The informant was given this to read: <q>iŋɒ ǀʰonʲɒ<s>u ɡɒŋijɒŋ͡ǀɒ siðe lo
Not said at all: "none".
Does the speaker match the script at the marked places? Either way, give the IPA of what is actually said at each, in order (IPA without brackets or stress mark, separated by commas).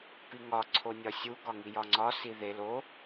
p, sʲ